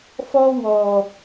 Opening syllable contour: high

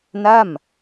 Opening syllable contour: falling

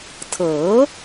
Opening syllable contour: rising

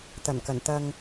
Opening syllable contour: low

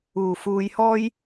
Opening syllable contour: low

